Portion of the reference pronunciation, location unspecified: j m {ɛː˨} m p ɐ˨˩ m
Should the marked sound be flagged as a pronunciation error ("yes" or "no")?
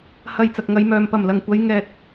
yes